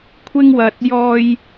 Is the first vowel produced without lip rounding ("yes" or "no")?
yes